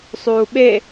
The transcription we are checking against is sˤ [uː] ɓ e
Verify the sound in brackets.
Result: correct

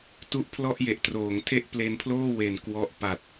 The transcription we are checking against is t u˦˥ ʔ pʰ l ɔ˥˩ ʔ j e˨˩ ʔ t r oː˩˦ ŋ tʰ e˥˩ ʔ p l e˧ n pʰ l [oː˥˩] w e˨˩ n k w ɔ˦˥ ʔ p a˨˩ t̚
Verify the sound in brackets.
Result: correct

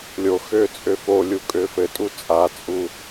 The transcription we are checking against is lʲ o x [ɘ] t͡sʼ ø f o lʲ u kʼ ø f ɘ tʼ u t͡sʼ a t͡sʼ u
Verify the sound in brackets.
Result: incorrect: ø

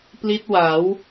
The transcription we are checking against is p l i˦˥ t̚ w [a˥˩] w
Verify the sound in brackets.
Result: incorrect: a˩˦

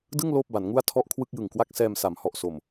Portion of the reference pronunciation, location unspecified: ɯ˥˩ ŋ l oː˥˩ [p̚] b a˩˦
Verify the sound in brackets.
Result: correct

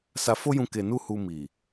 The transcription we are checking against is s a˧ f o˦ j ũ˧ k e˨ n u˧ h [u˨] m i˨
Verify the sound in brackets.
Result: incorrect: u˧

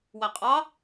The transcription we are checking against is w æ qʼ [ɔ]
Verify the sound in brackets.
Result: incorrect: ɑ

